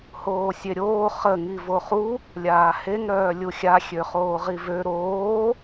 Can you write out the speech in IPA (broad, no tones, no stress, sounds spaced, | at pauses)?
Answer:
h oː sʲ e ɾʲ oː χ ə ŋ i v o χ u | lʲ aː h e ŋ ɾ œː lʲ u xʲ a xʲ ø χ oː ʁ i v ø ɾ oː